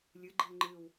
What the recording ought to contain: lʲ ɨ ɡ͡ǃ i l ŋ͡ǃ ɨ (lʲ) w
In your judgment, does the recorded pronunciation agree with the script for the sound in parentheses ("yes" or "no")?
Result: no